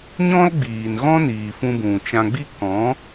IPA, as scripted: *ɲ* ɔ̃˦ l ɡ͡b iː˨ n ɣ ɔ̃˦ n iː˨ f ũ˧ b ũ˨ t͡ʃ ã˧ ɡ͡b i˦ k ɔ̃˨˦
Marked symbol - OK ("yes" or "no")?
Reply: yes